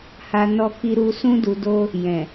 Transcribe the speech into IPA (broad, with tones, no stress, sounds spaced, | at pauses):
h a˨ n ɔ˨ k i˨ ɾ u˨ s ũ˧ d u˨ d o˧ | j ɛ̃˨